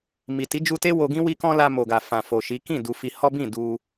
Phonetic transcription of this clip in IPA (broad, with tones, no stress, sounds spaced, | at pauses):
m i˨ t i˨˦ d͡ʒ u˧ t e˦ w o˧ ɡ ĩ˦ w i˦ k ɔ̃˦ l a˧ m o˨ ɡ a˨ f ã˨ f o˨ ʃ i˨˦ k ĩ˦˨ d u˧ f i˧ h ɔ˦ b ĩ˦˨ d u˧